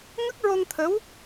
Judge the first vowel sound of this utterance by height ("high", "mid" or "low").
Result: mid